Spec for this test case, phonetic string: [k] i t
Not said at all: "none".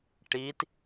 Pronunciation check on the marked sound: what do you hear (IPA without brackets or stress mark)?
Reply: ʈ